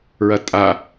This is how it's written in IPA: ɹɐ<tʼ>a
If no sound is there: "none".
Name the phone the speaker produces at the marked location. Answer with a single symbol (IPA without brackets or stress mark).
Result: tʼ